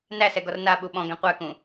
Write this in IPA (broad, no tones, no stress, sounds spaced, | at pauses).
n æ s ɛ ɡ ɔ r n a ɓ u ɓ ɔ̃ ɡ ɛ̃ qʷ æ k ũ